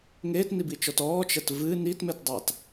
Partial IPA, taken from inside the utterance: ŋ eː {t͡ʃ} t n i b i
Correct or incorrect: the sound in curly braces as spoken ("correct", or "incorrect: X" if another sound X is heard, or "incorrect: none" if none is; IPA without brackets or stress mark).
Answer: incorrect: none